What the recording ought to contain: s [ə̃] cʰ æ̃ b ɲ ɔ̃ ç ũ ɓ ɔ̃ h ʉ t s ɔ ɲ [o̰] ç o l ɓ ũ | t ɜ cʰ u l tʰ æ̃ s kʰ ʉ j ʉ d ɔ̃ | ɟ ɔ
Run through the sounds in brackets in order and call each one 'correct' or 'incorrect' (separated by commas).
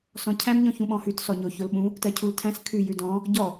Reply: incorrect, incorrect